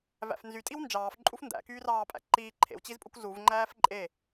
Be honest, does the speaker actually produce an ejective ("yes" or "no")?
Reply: yes